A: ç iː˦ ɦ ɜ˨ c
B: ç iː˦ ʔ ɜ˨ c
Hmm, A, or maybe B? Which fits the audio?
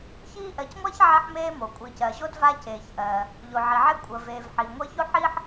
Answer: B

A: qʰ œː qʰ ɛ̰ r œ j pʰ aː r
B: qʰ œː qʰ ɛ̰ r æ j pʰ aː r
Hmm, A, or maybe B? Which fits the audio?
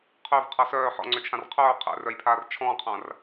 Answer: A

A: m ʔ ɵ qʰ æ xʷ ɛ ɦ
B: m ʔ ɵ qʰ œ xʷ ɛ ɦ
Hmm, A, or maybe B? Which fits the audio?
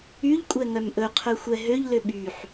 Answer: B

